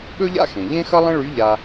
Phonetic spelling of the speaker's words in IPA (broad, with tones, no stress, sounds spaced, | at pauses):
ɠ ɵ˥ ʎ a̰˥ x ẽ˩ ʎ ẽ˥ x ʌ˥ lˠ ə̃˥ ɭ y˧˥ ʎ a˧